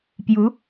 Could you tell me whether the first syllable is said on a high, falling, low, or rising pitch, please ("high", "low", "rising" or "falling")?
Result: rising